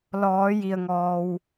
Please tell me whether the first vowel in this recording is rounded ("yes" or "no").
yes